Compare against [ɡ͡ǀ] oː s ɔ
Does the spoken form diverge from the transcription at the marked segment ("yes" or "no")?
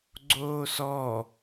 no